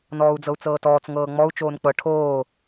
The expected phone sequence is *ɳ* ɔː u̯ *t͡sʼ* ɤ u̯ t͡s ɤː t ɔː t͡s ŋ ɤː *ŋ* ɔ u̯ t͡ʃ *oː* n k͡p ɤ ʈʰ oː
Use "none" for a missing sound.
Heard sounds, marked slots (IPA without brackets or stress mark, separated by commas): n, d͡z, ŋ͡m, oː